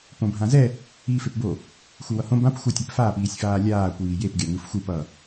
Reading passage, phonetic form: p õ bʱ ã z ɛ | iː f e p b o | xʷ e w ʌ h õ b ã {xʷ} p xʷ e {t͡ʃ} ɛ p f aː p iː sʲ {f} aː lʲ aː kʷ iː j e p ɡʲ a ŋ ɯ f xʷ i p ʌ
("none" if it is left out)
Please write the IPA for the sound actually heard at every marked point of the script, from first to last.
none, tʲ, f

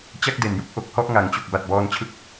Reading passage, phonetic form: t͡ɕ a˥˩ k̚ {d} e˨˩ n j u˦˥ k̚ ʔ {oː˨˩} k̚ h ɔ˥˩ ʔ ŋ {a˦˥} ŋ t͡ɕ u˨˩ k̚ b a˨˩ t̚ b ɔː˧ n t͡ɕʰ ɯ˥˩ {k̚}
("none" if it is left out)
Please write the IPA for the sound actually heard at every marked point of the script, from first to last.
d, o˨˩, a˨˩, k̚

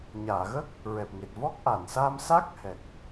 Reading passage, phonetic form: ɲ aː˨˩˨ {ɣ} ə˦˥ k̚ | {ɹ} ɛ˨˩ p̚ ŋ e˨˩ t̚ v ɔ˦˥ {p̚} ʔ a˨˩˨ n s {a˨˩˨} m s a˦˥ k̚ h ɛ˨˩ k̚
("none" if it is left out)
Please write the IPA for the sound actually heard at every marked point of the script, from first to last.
ɣ, ɹ, k̚, a˧

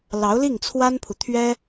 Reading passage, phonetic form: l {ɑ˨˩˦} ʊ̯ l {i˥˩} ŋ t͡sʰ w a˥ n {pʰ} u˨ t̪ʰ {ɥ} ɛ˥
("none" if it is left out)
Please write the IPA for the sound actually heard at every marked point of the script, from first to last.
ɑ˧˥, i˥˩, pʰ, ɥ

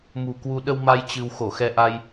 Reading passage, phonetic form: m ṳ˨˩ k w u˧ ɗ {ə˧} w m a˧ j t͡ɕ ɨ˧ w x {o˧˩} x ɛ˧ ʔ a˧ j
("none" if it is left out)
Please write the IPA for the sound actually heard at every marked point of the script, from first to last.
ə˧, o˧˩

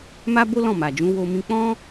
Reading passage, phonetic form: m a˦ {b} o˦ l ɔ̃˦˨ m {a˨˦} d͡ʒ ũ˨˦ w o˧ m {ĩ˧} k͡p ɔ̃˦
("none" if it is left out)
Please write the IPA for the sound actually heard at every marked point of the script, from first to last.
b, a˨, ĩ˧

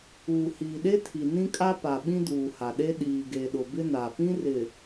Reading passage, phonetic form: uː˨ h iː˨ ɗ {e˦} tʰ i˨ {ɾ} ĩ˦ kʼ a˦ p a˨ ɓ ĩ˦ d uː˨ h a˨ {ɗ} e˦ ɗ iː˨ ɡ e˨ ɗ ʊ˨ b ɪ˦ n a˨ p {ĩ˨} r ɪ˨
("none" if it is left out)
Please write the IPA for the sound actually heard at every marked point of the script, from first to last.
e˦, n, ɗ, ĩ˦

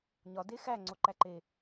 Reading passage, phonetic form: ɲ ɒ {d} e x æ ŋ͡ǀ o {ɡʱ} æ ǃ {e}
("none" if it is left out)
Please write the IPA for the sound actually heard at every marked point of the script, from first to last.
d, ǃ, e

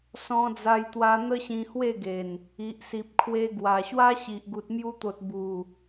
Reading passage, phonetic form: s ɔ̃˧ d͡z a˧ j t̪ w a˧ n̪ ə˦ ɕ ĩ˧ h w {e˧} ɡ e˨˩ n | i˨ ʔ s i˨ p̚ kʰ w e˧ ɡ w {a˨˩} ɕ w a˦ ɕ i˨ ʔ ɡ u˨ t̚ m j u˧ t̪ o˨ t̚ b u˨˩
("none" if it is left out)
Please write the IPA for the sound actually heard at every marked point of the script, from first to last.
e˥˧, a˨˩

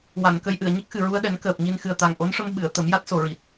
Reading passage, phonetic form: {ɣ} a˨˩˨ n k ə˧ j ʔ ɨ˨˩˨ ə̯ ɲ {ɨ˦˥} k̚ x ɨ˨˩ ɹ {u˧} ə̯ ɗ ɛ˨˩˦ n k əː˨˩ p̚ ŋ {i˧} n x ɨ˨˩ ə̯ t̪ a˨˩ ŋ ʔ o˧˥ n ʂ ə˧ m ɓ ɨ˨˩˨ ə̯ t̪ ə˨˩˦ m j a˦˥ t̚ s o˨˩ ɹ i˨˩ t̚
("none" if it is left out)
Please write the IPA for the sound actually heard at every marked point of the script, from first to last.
w, ə˦˥, u˧, i˧

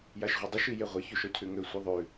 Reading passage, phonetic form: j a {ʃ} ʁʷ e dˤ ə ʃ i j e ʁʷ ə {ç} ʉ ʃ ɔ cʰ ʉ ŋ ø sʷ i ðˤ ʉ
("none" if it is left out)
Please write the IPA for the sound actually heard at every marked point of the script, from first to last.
ʃ, ç

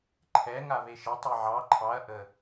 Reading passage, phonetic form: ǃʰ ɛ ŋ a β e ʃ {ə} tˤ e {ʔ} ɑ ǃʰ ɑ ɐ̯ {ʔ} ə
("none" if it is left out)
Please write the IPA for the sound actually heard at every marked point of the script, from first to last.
ə, ʕ, ʔ

